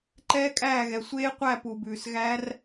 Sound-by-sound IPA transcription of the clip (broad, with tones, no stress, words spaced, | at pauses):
ǃɛː˦˥kʼæː˦˨ɣɛ˩ sʷeː˦˥qʷæ˦˨ pu˩bʉː˩sɣæ˦˥r